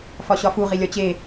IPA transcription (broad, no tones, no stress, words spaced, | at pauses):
fɒɕɒfu ʁilʲɒt͡ɕe